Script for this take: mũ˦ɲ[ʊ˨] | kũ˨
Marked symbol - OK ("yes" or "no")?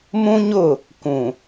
no